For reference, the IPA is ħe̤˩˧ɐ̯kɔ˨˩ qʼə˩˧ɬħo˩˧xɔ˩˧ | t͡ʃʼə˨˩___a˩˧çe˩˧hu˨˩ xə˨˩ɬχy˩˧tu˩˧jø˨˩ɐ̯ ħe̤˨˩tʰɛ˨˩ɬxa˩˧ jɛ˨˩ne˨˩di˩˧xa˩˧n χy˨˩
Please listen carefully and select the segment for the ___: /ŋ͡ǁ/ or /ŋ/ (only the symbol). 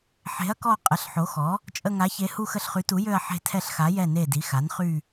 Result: ŋ